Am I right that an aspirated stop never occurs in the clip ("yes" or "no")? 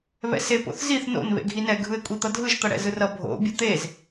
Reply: yes